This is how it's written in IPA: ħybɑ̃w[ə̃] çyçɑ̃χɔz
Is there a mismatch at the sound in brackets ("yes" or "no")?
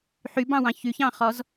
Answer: yes